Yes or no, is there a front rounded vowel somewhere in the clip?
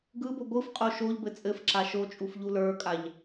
no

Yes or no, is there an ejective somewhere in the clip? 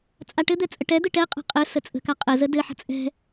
yes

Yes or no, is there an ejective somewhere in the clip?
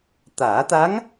no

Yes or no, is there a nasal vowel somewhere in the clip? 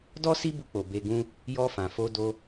yes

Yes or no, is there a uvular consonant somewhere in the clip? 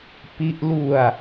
no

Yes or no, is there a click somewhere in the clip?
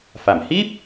no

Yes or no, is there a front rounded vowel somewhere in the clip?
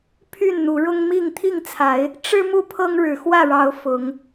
yes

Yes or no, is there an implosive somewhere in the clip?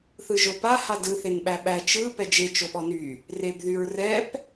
yes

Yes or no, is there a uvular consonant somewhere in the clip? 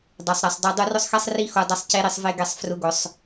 no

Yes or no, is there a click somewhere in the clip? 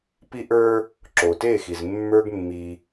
yes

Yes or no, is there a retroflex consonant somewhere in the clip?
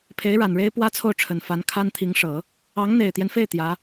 yes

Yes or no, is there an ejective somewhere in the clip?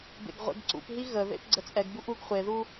yes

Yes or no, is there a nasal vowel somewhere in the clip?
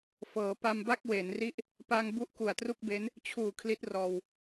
no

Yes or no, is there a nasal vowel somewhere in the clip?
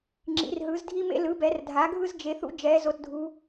no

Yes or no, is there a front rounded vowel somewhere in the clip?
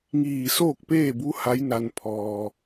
no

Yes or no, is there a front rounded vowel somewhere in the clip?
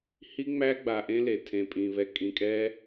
no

